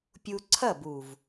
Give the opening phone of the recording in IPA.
pʲ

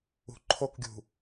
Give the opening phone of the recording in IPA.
ṳ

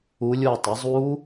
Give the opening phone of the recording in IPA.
u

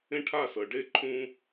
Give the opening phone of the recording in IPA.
ẽ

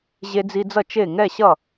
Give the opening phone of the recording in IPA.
ʑ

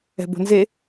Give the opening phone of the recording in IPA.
ɛ̤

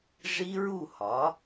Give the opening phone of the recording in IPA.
ʐ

